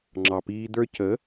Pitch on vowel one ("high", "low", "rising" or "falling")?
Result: low